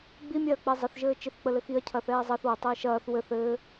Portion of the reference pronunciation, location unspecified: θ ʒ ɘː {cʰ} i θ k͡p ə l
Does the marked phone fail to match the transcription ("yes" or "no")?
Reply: yes